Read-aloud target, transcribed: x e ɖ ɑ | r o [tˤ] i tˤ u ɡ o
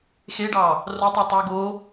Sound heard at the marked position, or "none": tˤ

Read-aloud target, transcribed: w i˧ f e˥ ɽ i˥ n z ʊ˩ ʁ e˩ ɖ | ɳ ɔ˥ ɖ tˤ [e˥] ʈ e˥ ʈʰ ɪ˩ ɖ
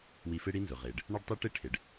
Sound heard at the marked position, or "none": e˥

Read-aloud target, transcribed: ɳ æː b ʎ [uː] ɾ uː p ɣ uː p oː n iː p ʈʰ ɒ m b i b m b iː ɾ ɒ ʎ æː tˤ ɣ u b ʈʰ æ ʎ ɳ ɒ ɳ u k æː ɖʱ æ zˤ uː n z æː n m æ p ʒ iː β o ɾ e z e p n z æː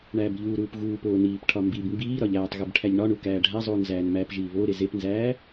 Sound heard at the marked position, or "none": uː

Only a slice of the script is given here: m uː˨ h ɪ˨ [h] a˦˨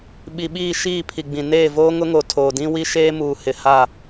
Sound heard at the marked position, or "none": h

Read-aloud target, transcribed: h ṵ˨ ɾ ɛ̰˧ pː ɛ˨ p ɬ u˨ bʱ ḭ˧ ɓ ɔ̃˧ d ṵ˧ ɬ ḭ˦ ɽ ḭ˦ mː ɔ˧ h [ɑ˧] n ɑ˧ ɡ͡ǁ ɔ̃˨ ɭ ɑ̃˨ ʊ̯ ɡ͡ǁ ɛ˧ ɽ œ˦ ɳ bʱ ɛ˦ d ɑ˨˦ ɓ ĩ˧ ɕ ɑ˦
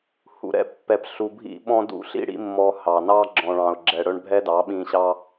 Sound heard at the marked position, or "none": ɑ˨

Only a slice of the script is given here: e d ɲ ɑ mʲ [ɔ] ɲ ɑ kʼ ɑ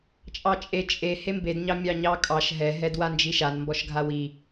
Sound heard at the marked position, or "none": ɑ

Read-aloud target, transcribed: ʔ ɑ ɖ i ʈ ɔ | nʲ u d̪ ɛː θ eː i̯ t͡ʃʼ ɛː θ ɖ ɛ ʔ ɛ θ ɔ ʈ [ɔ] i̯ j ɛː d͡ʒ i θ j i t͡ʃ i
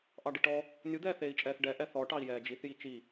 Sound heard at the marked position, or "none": ɑ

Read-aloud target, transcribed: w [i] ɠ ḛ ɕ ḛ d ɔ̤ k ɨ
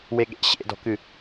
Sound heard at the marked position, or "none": e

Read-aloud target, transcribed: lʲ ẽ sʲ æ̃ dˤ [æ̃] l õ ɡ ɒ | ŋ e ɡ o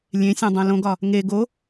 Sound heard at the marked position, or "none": æ̃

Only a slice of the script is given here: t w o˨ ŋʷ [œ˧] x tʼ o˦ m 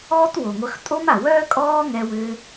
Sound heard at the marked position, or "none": œ˧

